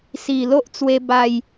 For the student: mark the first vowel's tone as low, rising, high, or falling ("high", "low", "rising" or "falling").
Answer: low